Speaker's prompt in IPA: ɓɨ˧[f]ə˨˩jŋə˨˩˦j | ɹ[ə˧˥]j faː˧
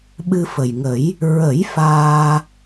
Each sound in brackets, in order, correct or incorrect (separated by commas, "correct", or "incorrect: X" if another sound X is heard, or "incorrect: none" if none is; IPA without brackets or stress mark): correct, incorrect: ə˨˩˦